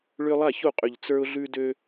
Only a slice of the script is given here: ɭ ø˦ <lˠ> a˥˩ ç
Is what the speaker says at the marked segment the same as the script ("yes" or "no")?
yes